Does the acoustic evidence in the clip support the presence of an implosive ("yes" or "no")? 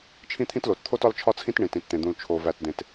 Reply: no